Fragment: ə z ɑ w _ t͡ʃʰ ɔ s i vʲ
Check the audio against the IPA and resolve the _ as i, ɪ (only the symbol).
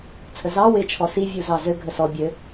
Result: ɪ